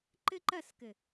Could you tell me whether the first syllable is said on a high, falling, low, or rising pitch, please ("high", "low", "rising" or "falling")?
high